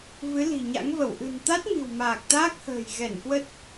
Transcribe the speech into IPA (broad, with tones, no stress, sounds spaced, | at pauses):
v ɨ˨˦ l i̤˨˩ ɲ a̰˧˥ ŋ v ə˧˩ w ʔ ɨ̤˨˩ n t̪ a˦˥ t̚ m i̤˨˩ w m aː˨˩ k̚ t̪ aː˦˥ k̚ h ə̤ː˨˩ j ɣ ɛ˧˩ n k w ə˦˥ t̚